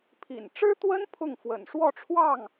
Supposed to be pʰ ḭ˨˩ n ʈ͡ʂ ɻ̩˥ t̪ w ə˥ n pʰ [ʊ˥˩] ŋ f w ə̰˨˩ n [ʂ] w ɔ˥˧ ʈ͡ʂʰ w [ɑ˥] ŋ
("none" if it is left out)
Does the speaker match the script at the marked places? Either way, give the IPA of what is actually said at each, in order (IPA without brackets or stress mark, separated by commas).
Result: ʊ˥˩, ʂ, ɑ˥˩